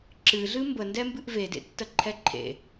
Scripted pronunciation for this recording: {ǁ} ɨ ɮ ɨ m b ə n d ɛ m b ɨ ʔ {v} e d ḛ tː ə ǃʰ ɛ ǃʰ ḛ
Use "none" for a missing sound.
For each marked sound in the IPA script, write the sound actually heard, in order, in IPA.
ǁ, v

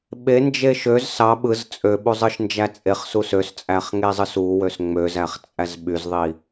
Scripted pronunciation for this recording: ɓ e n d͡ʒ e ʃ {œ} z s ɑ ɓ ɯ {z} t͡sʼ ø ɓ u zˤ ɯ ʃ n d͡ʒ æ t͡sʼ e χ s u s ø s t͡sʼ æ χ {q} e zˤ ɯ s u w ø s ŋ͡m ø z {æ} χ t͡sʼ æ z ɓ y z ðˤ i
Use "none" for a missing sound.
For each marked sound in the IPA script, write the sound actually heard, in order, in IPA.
ø, z, ŋ, æ

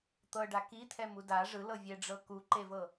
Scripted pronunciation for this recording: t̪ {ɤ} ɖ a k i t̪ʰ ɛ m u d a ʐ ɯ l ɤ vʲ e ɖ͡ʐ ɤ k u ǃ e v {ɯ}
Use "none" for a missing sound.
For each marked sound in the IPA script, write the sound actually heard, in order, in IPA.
ɤ, ɤ

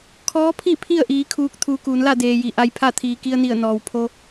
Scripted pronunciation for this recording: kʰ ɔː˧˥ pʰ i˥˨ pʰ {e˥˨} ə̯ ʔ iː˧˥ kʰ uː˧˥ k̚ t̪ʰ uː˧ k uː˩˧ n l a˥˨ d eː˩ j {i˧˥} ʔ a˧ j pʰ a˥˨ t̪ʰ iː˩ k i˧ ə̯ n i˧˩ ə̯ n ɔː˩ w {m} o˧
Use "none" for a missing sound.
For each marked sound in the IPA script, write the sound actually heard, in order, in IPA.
i˥˨, i˩, pʰ

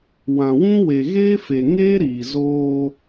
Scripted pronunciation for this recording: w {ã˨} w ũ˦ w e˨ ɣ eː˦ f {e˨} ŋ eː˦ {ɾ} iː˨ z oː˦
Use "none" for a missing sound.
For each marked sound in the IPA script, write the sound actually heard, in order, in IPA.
ã˨, e˨, ɾ

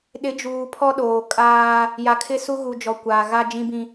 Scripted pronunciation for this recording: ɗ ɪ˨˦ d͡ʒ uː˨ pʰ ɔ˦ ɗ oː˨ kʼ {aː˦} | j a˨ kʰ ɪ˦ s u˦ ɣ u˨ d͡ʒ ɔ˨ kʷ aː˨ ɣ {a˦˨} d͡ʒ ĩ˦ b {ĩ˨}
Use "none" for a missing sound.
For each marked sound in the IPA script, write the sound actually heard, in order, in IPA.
aː˦, a˦, ĩ˦

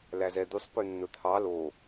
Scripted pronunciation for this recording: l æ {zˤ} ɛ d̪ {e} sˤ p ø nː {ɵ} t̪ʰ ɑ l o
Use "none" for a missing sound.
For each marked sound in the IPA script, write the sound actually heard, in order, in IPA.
z, y, ɵ

